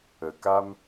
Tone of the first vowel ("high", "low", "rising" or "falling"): low